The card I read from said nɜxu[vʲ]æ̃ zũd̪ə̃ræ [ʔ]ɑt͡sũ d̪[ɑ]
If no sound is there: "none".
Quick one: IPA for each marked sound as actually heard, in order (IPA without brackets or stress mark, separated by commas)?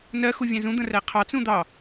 vʲ, qʰ, ɑ